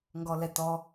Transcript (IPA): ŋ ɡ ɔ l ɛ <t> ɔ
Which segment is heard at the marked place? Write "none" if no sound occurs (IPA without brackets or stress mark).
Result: t